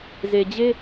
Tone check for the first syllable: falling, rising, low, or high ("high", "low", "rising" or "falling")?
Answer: low